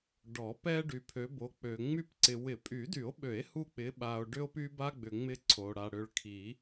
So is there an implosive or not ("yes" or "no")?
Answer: yes